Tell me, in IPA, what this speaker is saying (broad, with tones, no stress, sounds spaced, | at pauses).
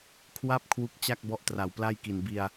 kʰ w a˥˩ p̚ kʰ w u˦˥ k̚ t͡ɕ a˥˩ k̚ b ɔ˦˥ ʔ t r a˨˩ w p l a˥˩ j k i˨˩ n b i˧ a̯